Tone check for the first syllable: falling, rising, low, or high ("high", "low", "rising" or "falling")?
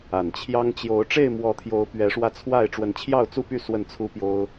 low